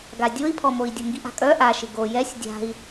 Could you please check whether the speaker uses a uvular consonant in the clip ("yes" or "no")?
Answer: no